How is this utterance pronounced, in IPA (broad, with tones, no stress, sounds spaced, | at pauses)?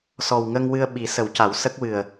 s ɔ˨˩ w ŋ ə˧ ŋ w ɨ˧ ə̯ ɓ i˨˩˦ s ə˨˩˦ w c a˨˩˦ w s ə˦˥ k̚ w ɨ˨˩ ə̯